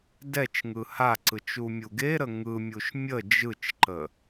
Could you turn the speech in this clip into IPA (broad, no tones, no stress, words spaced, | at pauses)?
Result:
dɛt͡ʃŋɯ haǀɯt͡ʃ umʲuɡeɾə ŋɯmʲuʃ mʲə d͡ʒɯt͡ʃǃə